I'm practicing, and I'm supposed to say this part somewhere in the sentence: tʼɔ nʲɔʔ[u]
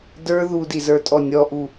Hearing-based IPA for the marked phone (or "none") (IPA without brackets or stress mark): u